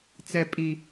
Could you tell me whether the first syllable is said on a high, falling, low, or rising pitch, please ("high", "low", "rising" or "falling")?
low